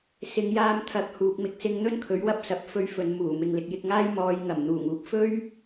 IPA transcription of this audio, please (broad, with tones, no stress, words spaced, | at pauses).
sɪ˨˧ŋjaː˧m t̪ʰɐ˨˥k̚ huː˨k̚mɪ˧k̚sɪ˧ŋ n̪ɵ˥nkʰɵ˨˥ɥwɐ˥p̚ sɐ˧p̚ fɵ˧ɥ fɵ˨nmuː˨˩ mɪ˨ŋlɪ˨k̚jɪ˧k̚ŋaː˥j mɔː˨˧jŋɐ˨˩m n̪uː˨˩ŋuː˨p̚ fɵ˥ɥ